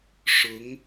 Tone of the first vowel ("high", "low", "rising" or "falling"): rising